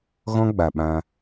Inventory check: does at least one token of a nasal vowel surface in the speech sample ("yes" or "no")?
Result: yes